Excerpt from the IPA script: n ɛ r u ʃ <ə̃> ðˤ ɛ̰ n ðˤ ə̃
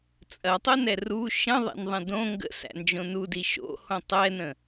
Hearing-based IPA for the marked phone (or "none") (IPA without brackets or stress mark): ə̃